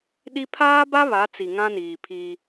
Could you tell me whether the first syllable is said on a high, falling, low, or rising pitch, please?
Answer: high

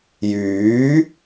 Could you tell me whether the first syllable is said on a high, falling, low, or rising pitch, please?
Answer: rising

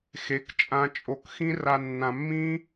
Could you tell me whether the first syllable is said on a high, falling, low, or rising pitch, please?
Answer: rising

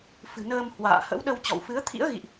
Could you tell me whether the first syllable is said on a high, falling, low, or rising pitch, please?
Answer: low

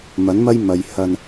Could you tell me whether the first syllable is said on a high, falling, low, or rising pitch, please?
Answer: rising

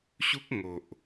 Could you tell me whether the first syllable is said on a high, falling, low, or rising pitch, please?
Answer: high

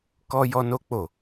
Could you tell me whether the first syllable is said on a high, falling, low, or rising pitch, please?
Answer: high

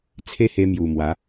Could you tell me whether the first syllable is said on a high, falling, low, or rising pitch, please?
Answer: high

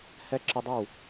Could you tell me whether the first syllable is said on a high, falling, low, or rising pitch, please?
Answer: high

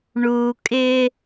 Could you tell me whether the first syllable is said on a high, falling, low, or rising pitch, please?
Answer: low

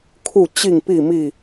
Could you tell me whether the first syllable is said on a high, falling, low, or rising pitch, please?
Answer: falling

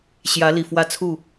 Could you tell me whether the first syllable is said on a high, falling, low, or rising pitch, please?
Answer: rising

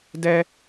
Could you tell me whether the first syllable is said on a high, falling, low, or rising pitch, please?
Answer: low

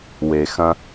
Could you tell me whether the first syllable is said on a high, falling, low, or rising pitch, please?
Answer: low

